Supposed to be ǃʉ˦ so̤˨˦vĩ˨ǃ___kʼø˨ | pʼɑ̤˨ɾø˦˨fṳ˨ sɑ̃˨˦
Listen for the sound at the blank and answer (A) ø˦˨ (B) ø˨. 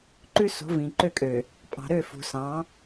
A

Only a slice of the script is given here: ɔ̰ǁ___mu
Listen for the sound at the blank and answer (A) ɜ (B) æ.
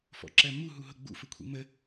A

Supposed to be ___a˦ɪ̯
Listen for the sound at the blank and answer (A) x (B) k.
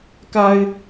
B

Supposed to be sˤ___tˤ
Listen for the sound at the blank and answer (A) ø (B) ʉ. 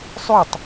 B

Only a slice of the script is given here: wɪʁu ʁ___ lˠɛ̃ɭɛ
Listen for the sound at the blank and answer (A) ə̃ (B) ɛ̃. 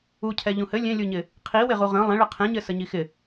A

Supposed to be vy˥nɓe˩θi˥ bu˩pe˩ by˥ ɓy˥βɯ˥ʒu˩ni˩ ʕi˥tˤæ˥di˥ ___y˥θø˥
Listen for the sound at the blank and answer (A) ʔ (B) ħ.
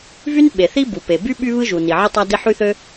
B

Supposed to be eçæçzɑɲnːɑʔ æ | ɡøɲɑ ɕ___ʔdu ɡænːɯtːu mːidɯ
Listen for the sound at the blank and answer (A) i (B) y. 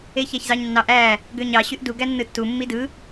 B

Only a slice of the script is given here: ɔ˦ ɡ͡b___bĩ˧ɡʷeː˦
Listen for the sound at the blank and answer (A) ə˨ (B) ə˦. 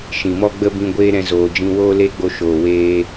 B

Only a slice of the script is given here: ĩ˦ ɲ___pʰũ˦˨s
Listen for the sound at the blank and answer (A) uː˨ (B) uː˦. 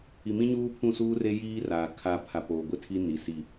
B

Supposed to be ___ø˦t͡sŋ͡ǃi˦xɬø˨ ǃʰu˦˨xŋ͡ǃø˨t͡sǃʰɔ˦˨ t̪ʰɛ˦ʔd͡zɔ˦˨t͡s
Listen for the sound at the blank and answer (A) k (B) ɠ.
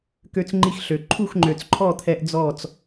A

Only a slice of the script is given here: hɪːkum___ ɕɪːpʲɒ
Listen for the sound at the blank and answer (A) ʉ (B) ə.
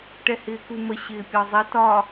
B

